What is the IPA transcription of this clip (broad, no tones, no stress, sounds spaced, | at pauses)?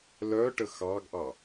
l œ ʈ ə x ɑ ɡ ʔ ɑ